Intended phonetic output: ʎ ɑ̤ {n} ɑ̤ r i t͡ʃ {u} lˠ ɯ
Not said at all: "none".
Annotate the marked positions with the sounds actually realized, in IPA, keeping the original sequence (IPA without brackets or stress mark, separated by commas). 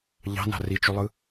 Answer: n, u